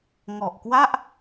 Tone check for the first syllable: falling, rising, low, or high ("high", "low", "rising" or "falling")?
low